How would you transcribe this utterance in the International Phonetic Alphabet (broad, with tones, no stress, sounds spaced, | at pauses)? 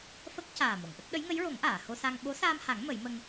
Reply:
f ə˦˥ k̚ c aː˨˩ m o˨˩˨ ŋ ʔ ə˦˥ k̚ ɗ ə˧˥ j ŋ ə˧˥ j ɹ o˨˩˦ ŋ ʔ aː˨˩˨ h o˧ s a˧ ŋ ɓ o˧˥ s aː˧ m h a˨˩˦ ŋ m ə˨˩˦ j m ə˧ ŋ